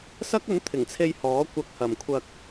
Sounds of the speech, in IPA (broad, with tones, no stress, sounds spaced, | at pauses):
s ɐ˥ k̚ ɵ˨˥ n t̪ʰ ɪ˨˩ ŋ t͡sʰ e˧ j h ɔː˨˥ kʷ ɐ˧ k̚ h ɐ˨ m kʷʰ ɐ˧ k̚